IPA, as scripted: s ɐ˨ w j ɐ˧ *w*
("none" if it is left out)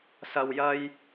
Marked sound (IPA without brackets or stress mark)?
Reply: j